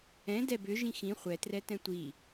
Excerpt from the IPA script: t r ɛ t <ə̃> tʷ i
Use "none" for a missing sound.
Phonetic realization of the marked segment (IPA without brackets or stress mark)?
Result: ɛ̃